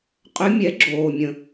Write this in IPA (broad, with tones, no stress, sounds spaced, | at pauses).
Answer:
qʼ ʏ˧˥ mʲ ɛ˩˥ ɡ͡ǁ oː˩ mʲ ə̃˩